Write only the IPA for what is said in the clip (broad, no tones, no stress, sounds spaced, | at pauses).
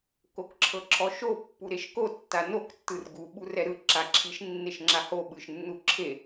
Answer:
k o k ǁʰ ɤ ǁʰ ɔ ʃ o pː u ɾ e ʃ k o tː a n o k tː ɯ r ɡ u ɓ u r ɛ ɾ ɯ ǁ a ǁʰ i ʃ nː e ʃ ŋ͡ǁ a h o ɓ ɯ ʃ nː u ǁʰ e